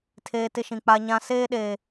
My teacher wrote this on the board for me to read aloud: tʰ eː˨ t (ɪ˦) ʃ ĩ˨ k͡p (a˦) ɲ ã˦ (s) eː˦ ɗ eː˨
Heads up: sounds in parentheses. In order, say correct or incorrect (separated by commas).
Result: correct, correct, correct